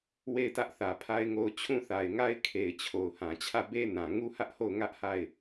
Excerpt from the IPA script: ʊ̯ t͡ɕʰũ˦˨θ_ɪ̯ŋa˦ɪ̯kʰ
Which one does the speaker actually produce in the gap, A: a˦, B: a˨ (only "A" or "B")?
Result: B